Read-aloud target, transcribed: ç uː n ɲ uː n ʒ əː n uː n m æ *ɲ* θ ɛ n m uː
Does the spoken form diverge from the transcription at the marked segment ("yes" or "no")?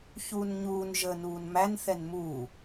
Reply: yes